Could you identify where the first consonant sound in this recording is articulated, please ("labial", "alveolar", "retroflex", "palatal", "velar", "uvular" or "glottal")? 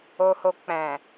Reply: glottal